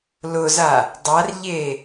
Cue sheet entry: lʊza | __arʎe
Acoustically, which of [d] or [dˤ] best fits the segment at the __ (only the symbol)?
dˤ